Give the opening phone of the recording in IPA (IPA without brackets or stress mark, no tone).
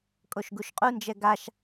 kʼ